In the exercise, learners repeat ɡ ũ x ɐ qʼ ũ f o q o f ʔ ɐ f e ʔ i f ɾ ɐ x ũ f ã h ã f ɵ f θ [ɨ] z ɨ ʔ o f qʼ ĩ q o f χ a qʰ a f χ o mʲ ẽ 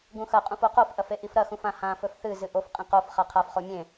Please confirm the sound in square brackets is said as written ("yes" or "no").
yes